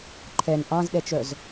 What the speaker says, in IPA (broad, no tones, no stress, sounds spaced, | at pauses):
ǃʰ ɛ n ʔ ɑ̃ z ɗ ɛ t͡ʃ œ z